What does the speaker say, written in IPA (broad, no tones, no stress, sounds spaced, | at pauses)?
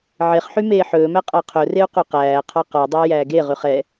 ʕ e χ ħ y m eː ħ ɵː m æ qʼ ɑ qʰ ɵ r e u̯ q u q æː qʰ ɑ q ɔ dˤ æ j æː ɡ e ʁ y χ ɛ